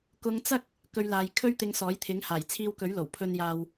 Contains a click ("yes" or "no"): no